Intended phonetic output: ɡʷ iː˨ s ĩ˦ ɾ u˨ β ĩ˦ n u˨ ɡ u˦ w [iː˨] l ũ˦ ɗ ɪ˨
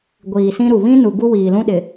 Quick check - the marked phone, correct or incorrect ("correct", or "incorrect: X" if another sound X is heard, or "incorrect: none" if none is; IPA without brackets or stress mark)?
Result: correct